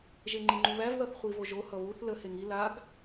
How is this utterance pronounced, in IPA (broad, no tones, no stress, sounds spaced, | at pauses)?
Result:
ʒ e ŋ͡ǃ i ŋ͡ǃ u β æ v ð ʌ θ χʷ i v o ʒ o h ʌ β u θ l ə h e ŋ i l a ɡ